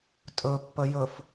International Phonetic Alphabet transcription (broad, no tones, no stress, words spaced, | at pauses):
tʼɵpːə jɵf